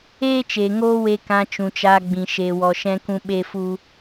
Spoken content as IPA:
eː˦ t͡ʃ eː˨ ŋ oː˦ w e˧ k ã˧ t͡ʃ ũ˨ t͡ʃ aː˧ ɡ͡b ĩ˨ ʃ e˨ w ɔ˨ ʃ ɛ̃˧ k ũ˧ ɓ e˦ f u˦

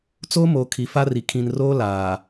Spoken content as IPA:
t͡s oː˦ m oː˨ kʰ i˨ f a˦ r i˨ kʰ ĩ˨ n r oː˦ l aː˨

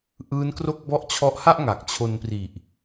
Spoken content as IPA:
ʔ ɯː˦˥ n k r o˥˩ k̚ b ɔ˦˥ ʔ t͡ɕʰ ɔ˦˥ ʔ h a˥˩ ʔ ŋ a˨˩ k̚ t͡ɕʰ o˧ n p r i˨˩ ʔ

